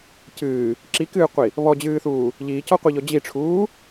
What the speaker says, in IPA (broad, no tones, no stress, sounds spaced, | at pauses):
c ɨː | ǁ i k ɨː qʷ i | β ɔ d͡ʑ ɨː θ uː | ʎ iː c ɔ qʷ i ʎ ɔ d͡ʑ i ʈ͡ʂʰ uː